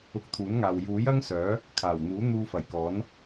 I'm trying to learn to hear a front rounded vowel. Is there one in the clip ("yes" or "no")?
yes